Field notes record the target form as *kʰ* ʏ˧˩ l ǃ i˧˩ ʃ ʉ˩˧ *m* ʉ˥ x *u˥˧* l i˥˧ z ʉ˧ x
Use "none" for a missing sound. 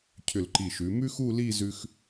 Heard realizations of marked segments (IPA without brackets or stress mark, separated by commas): cʰ, m, u˥˧